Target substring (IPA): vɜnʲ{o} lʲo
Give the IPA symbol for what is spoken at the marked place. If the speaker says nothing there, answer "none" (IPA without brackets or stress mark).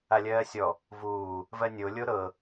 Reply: o